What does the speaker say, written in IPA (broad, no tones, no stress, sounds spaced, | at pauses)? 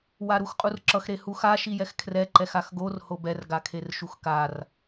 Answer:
w a ɾ u x qʼ u r ǁ ʌ x ɾ e h u x a ʃ i j ɛ x kʰ r ɛ ǃ ɛ x a x ɡ o r h o b ɛ r ɡ a kʰ e r ʃ u x k a r